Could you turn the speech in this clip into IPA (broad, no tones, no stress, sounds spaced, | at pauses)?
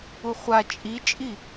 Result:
u χʷ a t͡ʃʼ i t͡ʃʼ i